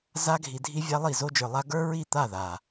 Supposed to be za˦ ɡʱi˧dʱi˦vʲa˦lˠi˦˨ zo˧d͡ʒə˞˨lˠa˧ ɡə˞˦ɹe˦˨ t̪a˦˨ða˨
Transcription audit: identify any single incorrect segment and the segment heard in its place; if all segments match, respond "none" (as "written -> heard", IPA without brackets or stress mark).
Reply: e˦˨ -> i˦˨